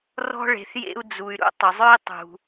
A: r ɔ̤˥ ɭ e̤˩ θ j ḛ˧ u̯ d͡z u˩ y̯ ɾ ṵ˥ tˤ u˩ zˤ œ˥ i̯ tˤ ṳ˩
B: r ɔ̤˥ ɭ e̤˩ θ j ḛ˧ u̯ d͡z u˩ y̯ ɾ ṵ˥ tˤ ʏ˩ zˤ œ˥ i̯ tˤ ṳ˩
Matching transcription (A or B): B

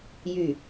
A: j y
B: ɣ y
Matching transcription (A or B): A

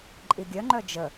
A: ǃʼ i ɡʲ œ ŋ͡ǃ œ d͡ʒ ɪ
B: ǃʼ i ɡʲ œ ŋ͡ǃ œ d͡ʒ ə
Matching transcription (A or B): B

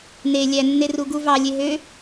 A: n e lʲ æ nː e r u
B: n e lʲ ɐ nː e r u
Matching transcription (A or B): A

